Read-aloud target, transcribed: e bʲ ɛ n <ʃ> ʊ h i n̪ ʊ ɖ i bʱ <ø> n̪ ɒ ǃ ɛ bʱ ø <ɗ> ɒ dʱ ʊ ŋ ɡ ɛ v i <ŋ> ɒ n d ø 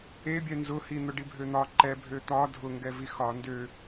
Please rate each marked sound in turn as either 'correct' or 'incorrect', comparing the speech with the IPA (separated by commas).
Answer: incorrect, correct, incorrect, incorrect